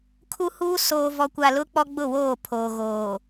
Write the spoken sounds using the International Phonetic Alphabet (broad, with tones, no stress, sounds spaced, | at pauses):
kʰ u˦ h uː˦ s oː˨ v ɔ˨ kʷ a˨ l ʊ˦ k͡p ɔ˦ ɡ͡b ʊ˦˨ w oː˦˨ pʰ oː˨ ɣ oː˨